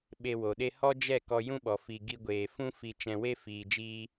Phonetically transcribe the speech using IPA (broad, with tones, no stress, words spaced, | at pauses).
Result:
ɓe˧wo˨ɗe˦ hɔ˦d͡ʒɛ˦˨ kɔ˧jũ˦ɓɔ˨ fi˨ ɡi˧ɡʷeː˨ fũ˦fi˧ t͡ʃɛ̃˧we˦ fiː˨d͡ʒiː˧